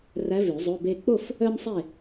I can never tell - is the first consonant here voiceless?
no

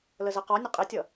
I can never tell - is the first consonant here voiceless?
no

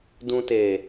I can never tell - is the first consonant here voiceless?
no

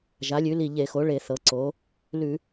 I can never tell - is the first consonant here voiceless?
no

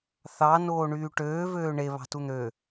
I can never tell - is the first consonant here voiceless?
yes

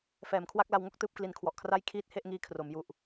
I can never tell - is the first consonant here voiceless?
yes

